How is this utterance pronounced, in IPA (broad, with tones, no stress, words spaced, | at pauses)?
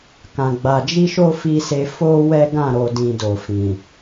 kã˨ɡ͡ba˨d͡ʒi˧ʃo˧ fi˧se˧ fo˧ wɛ˦ɡã˦˨ ɾo˧dĩ˧do˨fĩ˨